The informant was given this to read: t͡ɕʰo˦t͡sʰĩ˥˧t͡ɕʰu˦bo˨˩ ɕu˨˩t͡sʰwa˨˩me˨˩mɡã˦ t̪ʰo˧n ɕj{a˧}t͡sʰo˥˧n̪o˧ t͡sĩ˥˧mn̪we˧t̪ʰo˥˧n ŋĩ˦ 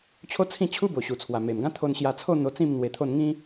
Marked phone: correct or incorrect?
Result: correct